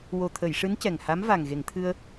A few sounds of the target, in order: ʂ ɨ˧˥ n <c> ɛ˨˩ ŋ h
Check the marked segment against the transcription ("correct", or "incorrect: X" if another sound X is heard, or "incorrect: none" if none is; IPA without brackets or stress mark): correct